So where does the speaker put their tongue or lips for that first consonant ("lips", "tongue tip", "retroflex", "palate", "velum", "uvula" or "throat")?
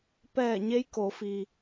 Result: lips